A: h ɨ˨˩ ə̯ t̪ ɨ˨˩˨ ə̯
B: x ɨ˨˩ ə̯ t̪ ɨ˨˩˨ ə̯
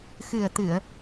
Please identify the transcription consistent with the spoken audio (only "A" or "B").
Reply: B